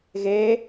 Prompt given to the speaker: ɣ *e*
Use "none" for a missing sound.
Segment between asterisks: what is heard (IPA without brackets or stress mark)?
e